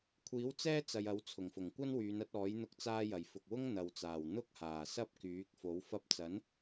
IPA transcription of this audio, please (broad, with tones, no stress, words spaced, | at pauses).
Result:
kʷʰiː˨˥wt͡sɛː˥ t͡sɐ˨jɐ˨˥w t͡sʰʊ˨˩ŋfʊ˨˩ŋkʷɐ˥n wyː˨˧nɐ˨˥t̚ɔː˨˥j n̪ʊ˧k̚ t͡saː˧jɐ˨˩j fʊ˨k̚wʊ˥ŋ n̪ɐ˨wt͡saː˨˩w n̪ʊ˥k̚haː˨˩sɐ˥p̚ kyː˨˥k̚ fo˨˥wfɐ˥p̚ t͡sɐ˨˥n